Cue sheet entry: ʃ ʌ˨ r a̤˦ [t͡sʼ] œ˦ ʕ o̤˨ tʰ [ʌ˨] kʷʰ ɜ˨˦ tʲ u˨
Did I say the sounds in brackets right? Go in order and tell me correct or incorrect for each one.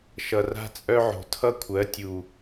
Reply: correct, incorrect

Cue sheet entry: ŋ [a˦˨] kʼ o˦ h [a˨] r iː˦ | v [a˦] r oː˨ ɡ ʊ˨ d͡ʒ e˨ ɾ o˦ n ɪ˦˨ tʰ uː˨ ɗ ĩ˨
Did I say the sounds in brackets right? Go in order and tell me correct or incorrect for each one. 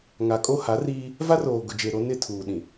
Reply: incorrect, incorrect, correct

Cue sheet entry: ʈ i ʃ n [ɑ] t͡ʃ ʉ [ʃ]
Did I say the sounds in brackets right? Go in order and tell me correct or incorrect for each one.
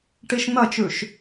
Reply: incorrect, correct

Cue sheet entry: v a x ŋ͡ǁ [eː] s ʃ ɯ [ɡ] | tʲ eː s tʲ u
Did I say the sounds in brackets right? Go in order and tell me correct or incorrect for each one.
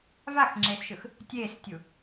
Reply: correct, incorrect

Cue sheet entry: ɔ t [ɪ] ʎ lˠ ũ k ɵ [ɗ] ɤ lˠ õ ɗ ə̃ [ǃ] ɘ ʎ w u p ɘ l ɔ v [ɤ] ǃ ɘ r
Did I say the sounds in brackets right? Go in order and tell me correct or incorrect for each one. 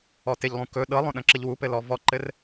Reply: correct, correct, incorrect, incorrect

